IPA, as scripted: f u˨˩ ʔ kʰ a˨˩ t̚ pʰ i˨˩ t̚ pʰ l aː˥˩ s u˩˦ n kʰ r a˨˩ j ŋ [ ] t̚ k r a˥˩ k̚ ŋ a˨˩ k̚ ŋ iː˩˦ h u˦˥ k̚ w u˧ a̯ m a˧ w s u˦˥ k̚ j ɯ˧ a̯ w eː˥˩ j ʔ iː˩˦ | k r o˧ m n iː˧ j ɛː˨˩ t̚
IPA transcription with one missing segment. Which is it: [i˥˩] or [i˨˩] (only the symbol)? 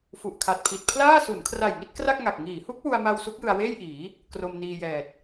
i˥˩